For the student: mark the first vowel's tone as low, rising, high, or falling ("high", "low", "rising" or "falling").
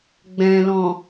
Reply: low